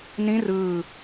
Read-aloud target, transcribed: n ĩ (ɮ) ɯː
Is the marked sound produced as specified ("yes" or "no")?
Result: no